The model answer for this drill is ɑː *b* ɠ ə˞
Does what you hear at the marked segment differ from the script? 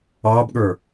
no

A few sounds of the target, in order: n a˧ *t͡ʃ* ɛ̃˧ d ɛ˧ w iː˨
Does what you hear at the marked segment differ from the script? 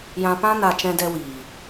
no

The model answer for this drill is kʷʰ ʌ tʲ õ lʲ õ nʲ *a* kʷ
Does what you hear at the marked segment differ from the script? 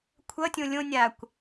no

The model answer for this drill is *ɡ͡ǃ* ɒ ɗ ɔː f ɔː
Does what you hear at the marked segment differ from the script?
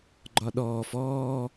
no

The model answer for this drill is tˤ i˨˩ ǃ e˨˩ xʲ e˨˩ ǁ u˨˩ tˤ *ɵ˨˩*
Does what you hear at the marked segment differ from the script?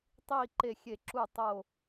yes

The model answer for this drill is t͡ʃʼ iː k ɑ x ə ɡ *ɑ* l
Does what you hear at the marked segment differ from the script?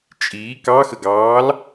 yes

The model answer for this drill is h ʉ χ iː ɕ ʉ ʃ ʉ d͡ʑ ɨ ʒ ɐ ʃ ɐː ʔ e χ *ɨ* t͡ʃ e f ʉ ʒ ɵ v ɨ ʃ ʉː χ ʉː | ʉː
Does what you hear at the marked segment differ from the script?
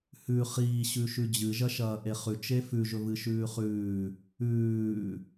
yes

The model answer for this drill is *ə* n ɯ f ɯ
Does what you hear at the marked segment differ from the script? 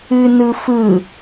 yes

